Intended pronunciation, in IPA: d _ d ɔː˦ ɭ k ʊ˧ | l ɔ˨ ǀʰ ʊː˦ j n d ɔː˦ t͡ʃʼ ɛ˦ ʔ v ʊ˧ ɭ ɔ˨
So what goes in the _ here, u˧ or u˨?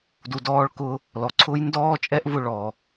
u˧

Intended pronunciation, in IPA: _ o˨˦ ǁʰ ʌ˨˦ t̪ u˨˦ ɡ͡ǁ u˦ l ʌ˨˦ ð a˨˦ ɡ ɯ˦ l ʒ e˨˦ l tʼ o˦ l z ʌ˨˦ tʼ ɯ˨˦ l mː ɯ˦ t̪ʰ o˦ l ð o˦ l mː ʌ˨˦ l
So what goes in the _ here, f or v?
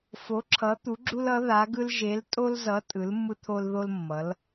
f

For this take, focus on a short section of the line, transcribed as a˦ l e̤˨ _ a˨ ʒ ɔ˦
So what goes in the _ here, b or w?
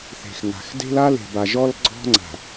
b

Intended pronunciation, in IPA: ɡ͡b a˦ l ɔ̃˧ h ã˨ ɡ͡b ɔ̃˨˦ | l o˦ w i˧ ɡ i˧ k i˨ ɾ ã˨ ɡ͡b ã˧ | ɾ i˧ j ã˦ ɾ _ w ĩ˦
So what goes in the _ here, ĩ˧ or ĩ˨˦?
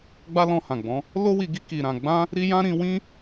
ĩ˧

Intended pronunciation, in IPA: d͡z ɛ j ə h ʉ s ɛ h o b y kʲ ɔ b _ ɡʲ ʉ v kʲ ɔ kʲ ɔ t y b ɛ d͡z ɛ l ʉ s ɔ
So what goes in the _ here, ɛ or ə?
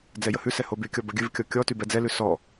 ə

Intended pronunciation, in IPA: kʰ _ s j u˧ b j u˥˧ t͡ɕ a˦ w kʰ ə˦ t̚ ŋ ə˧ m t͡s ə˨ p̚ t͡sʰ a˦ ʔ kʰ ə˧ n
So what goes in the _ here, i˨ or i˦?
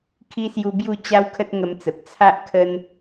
i˦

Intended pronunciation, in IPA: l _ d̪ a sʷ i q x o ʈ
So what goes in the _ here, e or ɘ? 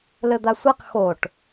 ɘ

